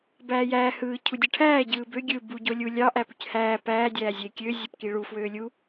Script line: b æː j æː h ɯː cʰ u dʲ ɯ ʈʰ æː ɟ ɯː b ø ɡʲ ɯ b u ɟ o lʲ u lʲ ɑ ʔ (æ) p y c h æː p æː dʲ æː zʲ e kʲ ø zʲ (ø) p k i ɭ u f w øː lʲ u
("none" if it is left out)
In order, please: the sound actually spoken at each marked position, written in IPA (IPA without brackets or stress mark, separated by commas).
æ, ø